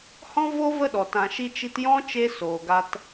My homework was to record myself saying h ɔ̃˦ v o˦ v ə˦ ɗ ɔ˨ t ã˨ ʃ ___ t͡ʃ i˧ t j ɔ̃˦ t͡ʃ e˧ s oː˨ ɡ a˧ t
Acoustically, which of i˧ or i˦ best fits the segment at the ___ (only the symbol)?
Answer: i˧